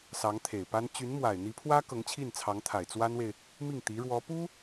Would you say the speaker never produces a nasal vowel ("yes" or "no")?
yes